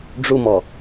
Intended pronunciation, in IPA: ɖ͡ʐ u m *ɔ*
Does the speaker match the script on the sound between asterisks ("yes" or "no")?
yes